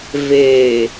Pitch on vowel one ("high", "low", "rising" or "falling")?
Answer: low